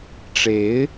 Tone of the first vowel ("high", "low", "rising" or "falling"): rising